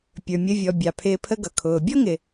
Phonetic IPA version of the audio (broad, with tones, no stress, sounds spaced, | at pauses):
pʲ ə˞˩ mʲ ə˧ vʲ ɔ˩ bʲ ɑ˩ pʰ ɪː˧ pʰ ə˥ ɡ ʌ˩ kʰ ʊː˩ bʲ ɔ˥ ŋ ɪ˩